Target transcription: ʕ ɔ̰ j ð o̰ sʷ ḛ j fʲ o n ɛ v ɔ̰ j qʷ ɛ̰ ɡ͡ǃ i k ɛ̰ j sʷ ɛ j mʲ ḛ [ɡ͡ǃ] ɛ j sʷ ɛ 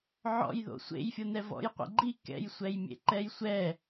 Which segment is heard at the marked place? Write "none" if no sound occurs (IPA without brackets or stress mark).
ǃ